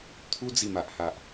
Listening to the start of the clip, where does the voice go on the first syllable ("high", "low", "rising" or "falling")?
high